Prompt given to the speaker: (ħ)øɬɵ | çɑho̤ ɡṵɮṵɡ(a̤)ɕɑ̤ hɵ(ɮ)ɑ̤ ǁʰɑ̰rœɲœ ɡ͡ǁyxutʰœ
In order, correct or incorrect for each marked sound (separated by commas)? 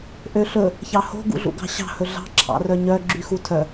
incorrect, incorrect, correct